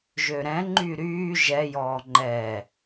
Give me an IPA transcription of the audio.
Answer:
ʒøɾɛ̃ ŋ͡ǃyɾyː ʒɛjɔː ŋ͡ǃɛ

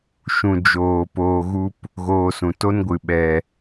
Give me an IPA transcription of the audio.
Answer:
ʃũ˨ d͡ʒoː˨poː˧ɣu˦p | ɣoː˧sũ˨ to˦nɡʷɨ˨ ɓɛ˨

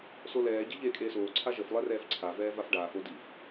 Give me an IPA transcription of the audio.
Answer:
solɛː ɟeʎeːkʼeːsoː ǀʰaʒəf lˠɛrɛːfǀʰa vɛːvafɖaːf odif

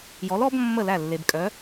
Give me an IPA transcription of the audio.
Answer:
jɔ˨˥lɔ˨˥b mːə˥˩læ˥˩lːe˨b kʼœ˨˥

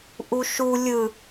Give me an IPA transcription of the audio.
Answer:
ʔuʃu lʲɯ

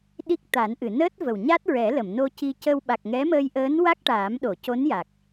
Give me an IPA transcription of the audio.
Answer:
ɗi˦˥k̚ t̪a˨˩˦nʔɨ˨˩˨ nəː˦˥t̚və˨˩w ɲa˦˥t̚ ɹɛ˨˩˦lə˨˩˨mno˧ ci˧cə˧w ɓa˨˩k̚ ŋɛ˧˥məː˧jʔəː˧˥n wa˦˥k̚ʈaː˨˩˦mɗo˨˩˨ co˧˥nja˨˩k̚

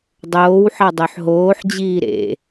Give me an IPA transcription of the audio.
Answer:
dˤoːwħɑ dˤøħɦoːħd͡ʑiː ɾḛ

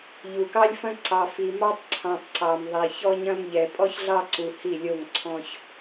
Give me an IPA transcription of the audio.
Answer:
ʎu˨kɑ˦lʲfɐ̃˦ ǀɑ˨fi˨mɑ˦tˤ ǀʰɑ̃˨tˤ ǀɑ˨mðˤi˨ çɔ˦ɲɐ̃˦mʎɛ˨ pʼɔ˦çɮɑ˦ǀu˨ hi˦˨lʲo˦˨ŋǀʰɔ̃˦ç

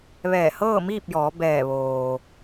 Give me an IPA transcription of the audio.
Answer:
ʋɛː˧˩hɤː˥˨miː˥˨p̚jɔː˩˧ bɛː˧˩ ʋoː˩

